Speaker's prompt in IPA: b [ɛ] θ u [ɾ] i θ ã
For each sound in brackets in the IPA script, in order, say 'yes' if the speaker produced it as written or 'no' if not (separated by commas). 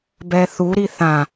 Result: yes, yes